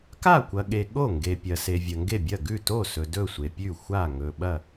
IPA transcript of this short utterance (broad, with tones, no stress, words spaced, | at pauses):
ka˥˩kʷɐ˨ɠe˨ ɠo˥˩ŋɡe˨pʲɐ˨ se˨vʲɐ˨ŋɡe˥˩bʲɐ˥˩ ɡʉ˥˩to˥˩sɵ˨ dɵ˥˩sʷe˨pʲʉ˥˩ xʷa˥˩ŋɵ˨ ɓɐ˥˩